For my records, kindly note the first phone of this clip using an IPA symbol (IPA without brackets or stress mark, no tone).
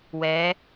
w